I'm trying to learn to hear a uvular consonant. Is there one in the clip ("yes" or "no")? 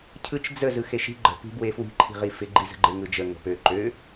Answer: yes